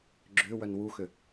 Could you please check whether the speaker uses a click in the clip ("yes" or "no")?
yes